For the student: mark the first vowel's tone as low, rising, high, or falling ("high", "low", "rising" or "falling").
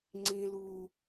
low